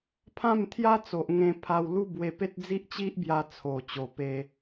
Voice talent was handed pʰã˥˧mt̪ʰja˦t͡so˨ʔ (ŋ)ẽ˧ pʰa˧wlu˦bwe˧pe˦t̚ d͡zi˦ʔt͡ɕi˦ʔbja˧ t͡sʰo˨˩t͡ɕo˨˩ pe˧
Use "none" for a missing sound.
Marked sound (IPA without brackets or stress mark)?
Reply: ŋ